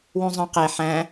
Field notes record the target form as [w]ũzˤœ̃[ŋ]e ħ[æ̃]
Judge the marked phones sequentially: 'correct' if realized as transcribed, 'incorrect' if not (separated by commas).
correct, incorrect, correct